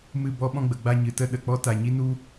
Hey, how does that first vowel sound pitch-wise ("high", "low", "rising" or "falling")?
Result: falling